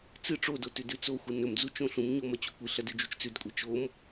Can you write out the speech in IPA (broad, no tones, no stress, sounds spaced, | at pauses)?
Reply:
t͡s ɨ ʈ͡ʂ o d o t ʉ d ʉ t͡s o xʷ ɨ n ɵ m d͡z u t͡ʃ õ ɬ ũ m ɲ o m ɐ t͡ɕ u kʷ ɨ ɬ ɐ d ʉ d͡ʒ u t͡ʃ t͡s ʉ d kʷʼ i t͡ʃ o m